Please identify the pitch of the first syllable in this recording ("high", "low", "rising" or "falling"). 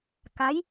rising